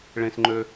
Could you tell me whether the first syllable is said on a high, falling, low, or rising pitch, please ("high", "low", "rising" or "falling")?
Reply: low